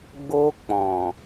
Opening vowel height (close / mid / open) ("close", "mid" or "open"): mid